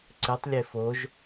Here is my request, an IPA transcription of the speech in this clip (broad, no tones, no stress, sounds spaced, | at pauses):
ǀ ɨ tˤ lʲ e f o ʒ